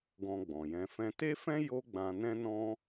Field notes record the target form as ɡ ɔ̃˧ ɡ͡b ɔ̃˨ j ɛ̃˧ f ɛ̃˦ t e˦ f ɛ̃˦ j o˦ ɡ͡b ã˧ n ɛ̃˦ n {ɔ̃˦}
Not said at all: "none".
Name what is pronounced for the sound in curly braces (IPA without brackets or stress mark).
ɔ̃˦